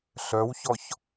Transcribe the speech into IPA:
ɬ œ w ç ɔ ç

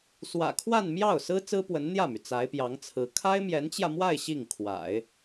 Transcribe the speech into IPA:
s w ä̰˨˩ kʰ w a˥˧ n m j ɑ˥˩ ʊ̯ s ɹ̩˥ t͡s ɹ̩˥ p w ə˧˥ n n̪ j ä˥˩ m y˩ t͡s a˧˥ ɪ̯ p j ɑ˧˥ ŋ t͡sʰ ɹ̩˧˥ kʰ a˥ ɪ̯ m j ɛ˧˥ n t͡ɕ j ä˧ m w a˥˧ ɪ̯ ɕ i˥˩ ŋ kʰ w a̰˨˩˦ ɪ̯

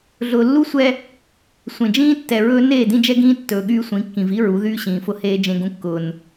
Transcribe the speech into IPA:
ɮ ʊː˨ lː u˦ sʷ ɛ˦ | sʷ ẽ˨ d͡ʒ ĩː˦ tː ɛ˨ ɹ ɵː˦ n eː˦˨ d ĩ˦ d͡ʒ ɛ˦ ɡ ĩː˦ tː ɵː˨ ɠ yː˦ sʷ ĩ˨˦ kː ĩ˨ v i˦ ɹ u˨˦ ð yː˦ ɕ ĩː˨ f ʊ˦ h eː˦ d͡ʒ ẽ˦ ɡ ũ˦ kː ʊː˦ n

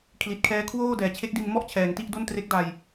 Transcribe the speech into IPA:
kʰ l i˨˩ t̚ kʰ ɛː˦˥ kʰ w oː˥˩ d ɛː˨˩ t͡ɕʰ e˦˥ k̚ d i˧ n m ɔ˥˩ ʔ t͡ɕʰ ɛː˩˦ ŋ t i˥˩ ʔ d o˥˩ n t r e˦˥ k̚ d a˧ j

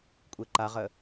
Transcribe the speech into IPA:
kʷʼ e ǃ a ʁ ə

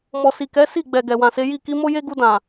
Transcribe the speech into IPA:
m ɔ˨ s i˨ k ɛ˨˦ s i˦˨ ɡ͡b ɛ˨ ɡ ɛ˨ w ã˨ s e˨˦ j i˦˨ k i˧ m o˦ j e˦ ɡ u˧ d ã˨

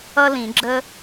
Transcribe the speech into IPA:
ʌ˥ l ĩ˨˩˦ ɡ͡ǁ ə˥

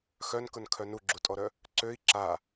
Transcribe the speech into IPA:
x œ n k ʊ n kʰ œ n u ɡ͡ǁ u tʼ ɔ ɾ œ | ǀ ø i̯ ǁ a

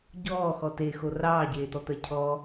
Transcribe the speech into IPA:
ɟ ɔː x ɔ t e x o r ɑː ɟ eː t̪ ɔ t̪ ɜ cʰ ɔː

